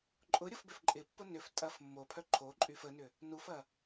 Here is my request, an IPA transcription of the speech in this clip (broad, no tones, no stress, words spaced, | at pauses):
ǃʼʊ ɾʲʊfbøfǃʼɪpːʊ nʏf tʼɐf mːopʰœ ǃʰoǃʼyf ənʏ | nufɐ